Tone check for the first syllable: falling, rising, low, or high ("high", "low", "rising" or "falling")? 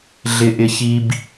low